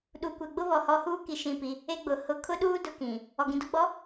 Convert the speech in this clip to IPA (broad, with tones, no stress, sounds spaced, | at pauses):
ɗ u˨ kʷ ɛ˨ ɡ͡b ʊ˦ β ɔ˨ h ɔ˦ h uː˦ k i˨ ʃ ĩ˦˨ p i˦ | e˦ ɡ͡b ʊ˨ h ʊ˦ kʰ ʊ˦ ɗ uː˦ d ʊ˨ k ĩ˨ | ɔ˨ ɡ ĩ˨ d ʊ˦ ɡ͡b ɔ˨˦